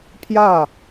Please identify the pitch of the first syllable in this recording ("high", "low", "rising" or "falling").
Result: falling